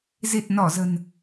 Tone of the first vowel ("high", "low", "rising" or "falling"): low